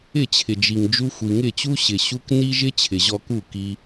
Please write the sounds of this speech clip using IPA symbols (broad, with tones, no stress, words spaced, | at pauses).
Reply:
ɪ˦˨t͡ɕʰɪ˨d͡ʒi˨ŋd͡ʒu˧ xʷi˨ŋɪ˦˨t͡ɕu˦ɕɪ˨ ɕu˧k ni˦ʒɪ˦ t͡ɕʰɪ˨ʑɔ˧ku˦˨ ki˧